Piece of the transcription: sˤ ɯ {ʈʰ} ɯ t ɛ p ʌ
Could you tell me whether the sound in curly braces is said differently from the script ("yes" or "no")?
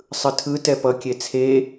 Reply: yes